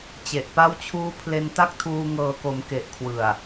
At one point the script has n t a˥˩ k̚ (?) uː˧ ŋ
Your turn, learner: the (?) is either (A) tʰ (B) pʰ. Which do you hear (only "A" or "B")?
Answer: A